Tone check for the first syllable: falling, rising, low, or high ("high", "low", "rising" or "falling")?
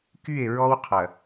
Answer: falling